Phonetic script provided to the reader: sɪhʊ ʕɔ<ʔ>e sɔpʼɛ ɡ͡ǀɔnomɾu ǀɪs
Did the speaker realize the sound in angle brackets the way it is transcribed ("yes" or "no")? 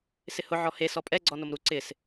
no